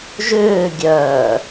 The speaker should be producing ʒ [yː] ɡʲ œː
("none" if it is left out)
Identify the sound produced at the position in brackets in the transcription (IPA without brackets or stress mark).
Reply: ʏː